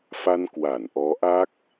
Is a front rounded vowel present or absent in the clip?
absent